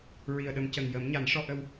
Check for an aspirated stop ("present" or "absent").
absent